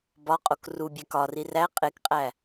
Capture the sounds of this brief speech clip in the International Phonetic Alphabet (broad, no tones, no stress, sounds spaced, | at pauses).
b ɒ qʼ o k r u bʲ æ k ɒ r i r æ qʼ e k qʼ æ